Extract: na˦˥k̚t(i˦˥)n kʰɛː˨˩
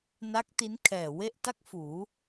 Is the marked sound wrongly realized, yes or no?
no